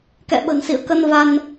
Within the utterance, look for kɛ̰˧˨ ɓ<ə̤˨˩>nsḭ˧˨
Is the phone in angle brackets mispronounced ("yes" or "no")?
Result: no